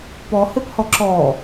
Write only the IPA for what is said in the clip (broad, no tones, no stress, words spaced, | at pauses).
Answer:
pɔhɘphɔ ǁɔ